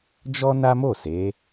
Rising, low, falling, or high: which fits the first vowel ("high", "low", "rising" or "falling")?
high